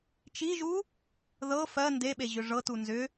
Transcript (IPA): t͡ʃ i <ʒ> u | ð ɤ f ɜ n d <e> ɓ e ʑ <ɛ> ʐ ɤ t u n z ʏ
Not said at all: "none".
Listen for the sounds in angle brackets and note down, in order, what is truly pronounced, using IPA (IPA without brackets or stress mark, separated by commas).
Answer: ʒ, e, ʏ